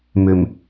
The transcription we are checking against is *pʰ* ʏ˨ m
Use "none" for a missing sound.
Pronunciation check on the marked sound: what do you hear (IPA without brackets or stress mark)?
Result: m